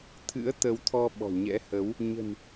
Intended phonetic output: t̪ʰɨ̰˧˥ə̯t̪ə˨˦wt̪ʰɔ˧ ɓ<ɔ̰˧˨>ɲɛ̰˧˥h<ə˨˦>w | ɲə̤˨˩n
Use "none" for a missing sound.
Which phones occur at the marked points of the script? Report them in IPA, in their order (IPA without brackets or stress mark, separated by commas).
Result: ɔ̤˨˩, ə˨˦